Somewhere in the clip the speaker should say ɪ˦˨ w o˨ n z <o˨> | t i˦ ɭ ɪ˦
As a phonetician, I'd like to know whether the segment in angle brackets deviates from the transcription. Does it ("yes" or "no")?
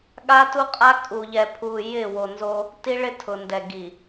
yes